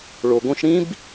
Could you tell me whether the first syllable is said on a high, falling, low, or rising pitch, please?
low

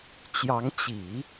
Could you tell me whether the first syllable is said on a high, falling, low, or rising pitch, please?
rising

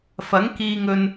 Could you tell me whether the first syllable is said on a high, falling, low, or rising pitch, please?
rising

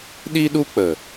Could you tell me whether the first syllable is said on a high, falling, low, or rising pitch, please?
high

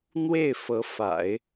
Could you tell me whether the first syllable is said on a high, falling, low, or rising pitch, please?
falling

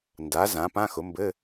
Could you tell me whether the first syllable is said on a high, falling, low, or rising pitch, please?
rising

